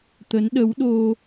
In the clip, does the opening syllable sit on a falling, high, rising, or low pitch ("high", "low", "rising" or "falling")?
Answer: rising